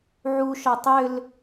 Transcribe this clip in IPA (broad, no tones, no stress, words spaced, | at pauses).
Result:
ʕuʃɒ tˤʏl